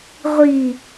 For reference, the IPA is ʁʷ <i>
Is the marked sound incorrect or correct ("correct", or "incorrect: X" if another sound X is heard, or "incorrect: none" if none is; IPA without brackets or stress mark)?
correct